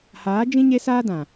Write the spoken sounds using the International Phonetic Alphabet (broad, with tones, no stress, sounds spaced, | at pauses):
h aː˨˦ d͡ʒ ĩ˦ ɲ e˦ s aː˦ d ã˨